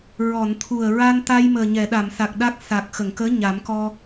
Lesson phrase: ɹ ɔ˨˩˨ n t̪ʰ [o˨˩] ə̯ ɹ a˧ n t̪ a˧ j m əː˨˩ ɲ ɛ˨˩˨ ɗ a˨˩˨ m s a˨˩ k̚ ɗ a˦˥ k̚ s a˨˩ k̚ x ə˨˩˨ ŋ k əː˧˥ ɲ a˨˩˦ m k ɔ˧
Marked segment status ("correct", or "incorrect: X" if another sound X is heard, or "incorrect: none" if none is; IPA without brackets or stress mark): incorrect: u˨˩